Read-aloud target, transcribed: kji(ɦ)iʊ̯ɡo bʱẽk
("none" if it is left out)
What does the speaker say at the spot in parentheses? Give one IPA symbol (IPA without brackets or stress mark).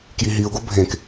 ɦ